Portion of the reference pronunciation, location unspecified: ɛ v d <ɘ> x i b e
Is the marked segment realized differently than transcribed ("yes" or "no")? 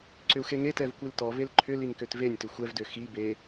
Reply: yes